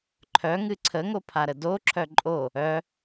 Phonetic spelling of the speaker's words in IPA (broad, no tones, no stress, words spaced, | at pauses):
ǃʰœŋɨ ǀʰəŋopʰaɾə doǁʰœ ǃʼo | œ